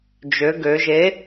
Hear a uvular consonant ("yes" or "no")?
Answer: no